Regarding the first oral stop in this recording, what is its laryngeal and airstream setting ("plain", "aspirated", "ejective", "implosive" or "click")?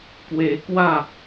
plain